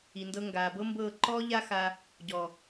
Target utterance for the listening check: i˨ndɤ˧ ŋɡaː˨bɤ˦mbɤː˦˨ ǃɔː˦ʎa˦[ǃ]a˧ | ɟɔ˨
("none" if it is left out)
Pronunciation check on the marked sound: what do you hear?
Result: x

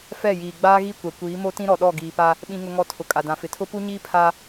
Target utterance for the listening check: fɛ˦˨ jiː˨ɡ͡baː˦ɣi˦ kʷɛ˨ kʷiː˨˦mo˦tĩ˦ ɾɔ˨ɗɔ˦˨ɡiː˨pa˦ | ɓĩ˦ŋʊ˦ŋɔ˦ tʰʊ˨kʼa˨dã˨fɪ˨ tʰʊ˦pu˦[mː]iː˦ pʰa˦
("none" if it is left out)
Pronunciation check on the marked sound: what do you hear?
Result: ɲ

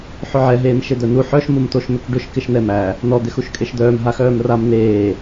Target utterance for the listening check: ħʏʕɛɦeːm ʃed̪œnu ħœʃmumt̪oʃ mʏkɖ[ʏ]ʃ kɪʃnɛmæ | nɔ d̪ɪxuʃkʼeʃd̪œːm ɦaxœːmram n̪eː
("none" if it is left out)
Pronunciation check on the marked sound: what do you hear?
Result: ʏ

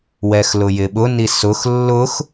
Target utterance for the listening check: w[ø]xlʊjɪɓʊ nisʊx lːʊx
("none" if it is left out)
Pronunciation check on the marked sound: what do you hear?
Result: ɛ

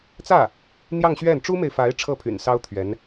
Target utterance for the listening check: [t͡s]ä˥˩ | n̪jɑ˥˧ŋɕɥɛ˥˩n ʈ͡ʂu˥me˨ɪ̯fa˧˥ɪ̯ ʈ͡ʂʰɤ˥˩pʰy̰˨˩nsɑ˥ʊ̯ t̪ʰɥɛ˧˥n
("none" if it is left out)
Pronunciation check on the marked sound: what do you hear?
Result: t͡s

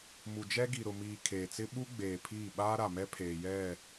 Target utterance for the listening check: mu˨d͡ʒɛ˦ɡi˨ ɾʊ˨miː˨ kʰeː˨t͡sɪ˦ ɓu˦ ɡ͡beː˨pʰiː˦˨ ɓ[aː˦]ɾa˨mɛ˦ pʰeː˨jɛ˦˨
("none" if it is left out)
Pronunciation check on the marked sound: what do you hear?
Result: aː˦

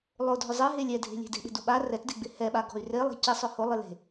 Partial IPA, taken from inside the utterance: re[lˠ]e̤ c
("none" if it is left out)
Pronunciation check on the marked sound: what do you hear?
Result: lˠ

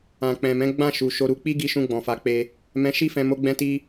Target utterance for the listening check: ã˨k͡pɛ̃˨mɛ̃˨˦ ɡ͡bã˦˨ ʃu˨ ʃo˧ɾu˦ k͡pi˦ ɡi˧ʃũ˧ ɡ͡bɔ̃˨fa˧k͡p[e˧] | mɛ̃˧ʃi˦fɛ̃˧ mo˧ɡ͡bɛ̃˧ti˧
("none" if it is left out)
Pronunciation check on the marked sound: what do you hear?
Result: e˧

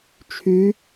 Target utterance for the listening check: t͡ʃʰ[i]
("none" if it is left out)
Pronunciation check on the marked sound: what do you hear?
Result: y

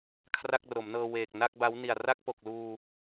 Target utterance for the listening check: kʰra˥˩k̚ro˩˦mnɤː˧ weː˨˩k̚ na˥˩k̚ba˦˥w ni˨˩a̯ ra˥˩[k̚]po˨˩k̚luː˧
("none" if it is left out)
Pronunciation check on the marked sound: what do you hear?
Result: k̚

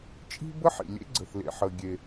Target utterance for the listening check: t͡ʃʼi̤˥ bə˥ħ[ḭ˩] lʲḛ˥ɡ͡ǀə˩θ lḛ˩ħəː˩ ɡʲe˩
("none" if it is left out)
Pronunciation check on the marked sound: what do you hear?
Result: ḭ˩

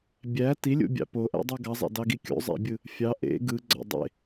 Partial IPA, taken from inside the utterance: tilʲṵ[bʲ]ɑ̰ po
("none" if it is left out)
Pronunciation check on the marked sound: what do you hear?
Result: bʲ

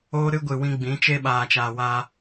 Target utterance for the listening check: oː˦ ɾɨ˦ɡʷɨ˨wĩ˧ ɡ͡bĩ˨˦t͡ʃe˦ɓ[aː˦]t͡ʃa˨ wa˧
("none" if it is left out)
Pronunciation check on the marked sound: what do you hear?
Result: aː˨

